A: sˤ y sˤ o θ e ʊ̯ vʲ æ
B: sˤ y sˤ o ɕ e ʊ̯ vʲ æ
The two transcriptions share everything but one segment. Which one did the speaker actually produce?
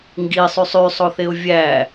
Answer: A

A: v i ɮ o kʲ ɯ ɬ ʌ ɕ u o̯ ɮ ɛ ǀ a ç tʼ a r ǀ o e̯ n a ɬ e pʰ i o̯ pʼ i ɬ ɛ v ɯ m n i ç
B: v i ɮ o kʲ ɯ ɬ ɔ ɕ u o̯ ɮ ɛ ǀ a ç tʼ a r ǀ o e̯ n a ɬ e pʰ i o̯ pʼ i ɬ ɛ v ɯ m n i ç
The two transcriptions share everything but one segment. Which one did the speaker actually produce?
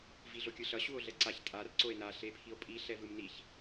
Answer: A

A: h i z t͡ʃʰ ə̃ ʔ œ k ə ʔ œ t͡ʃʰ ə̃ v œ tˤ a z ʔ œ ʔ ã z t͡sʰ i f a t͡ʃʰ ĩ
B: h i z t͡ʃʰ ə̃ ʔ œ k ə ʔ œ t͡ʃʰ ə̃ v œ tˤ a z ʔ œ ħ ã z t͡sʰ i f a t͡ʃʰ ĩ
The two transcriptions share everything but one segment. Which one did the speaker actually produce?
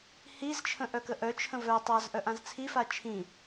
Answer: A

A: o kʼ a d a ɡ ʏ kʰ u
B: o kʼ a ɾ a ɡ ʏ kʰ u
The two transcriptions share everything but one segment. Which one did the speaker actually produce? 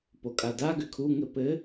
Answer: A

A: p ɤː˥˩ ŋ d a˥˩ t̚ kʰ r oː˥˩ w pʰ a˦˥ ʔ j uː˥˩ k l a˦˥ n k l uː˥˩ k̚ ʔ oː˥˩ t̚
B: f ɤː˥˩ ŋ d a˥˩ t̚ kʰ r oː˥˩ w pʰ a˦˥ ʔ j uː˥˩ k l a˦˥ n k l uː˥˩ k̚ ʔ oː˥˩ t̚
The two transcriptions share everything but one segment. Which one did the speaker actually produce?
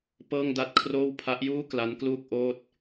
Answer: A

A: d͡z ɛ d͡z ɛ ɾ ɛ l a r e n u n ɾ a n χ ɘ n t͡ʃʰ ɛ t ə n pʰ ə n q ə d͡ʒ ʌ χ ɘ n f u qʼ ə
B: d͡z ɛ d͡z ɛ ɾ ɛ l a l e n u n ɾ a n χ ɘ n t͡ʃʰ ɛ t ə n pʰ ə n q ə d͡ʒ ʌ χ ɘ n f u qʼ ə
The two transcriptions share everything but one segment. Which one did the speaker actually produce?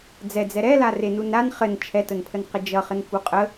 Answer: A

